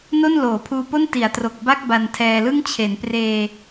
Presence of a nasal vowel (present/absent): absent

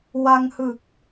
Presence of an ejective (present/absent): absent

